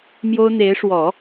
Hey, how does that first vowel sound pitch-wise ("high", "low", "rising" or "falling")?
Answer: high